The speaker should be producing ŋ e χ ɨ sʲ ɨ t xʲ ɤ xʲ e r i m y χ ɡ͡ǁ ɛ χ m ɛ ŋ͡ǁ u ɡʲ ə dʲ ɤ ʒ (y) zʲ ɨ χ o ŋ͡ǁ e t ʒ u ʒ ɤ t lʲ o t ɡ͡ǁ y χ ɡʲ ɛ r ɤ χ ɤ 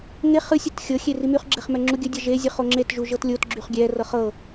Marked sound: incorrect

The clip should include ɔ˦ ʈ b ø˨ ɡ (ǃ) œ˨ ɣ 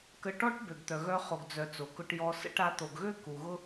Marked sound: incorrect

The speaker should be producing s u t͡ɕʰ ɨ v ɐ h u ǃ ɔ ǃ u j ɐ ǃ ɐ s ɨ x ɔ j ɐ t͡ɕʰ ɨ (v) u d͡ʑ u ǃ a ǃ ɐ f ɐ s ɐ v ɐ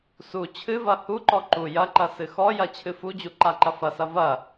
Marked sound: incorrect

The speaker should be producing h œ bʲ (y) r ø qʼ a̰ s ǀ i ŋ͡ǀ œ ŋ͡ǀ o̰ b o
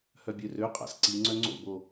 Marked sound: incorrect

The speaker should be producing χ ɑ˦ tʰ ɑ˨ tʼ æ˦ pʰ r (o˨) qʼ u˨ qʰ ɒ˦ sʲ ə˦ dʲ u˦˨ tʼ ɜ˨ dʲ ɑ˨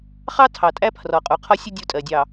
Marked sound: incorrect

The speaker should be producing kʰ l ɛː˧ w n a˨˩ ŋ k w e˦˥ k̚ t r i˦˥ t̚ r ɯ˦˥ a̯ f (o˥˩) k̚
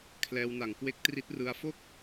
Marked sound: correct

